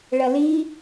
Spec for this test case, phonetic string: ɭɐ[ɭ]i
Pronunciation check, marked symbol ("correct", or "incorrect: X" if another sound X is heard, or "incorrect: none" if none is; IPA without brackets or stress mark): incorrect: l